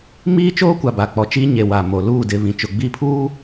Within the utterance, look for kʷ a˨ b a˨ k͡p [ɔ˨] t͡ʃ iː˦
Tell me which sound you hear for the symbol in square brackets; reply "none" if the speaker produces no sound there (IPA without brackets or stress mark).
ɔ˨